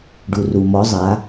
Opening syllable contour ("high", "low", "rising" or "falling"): low